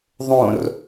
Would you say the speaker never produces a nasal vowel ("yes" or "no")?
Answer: no